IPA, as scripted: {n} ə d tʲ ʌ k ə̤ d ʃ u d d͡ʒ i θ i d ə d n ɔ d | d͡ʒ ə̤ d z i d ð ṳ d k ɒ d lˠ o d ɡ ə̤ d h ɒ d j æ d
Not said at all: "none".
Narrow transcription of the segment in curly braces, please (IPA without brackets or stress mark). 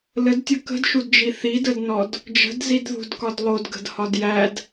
l